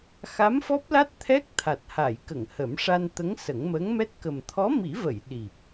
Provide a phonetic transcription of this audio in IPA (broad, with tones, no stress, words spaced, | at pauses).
xa˧˥mfɔ˦˥p̚la˦˥t̚ t̪ʰɛ˦˥k̚t̪ʰa˨˩t̚ ha˨˩˨jkə˨˩˨ŋ hə˨˩˦mʂa˧nt̪ə˧˥ŋ sə˨˩˦ŋməː˧˥ŋ mɛ˦˥t̚ kə˨˩mt̪ʰɔ˧˥mi˨˩˦və˨˩˨j ɗi˨˩p̚